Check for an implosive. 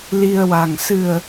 absent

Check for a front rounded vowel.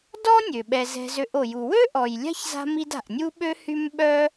present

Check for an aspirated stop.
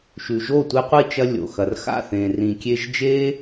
absent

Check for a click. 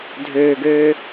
absent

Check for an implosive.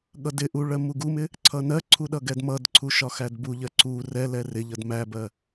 present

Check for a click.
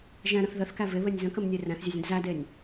absent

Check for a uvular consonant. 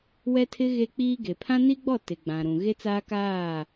absent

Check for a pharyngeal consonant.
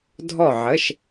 present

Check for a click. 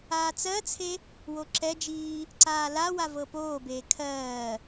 present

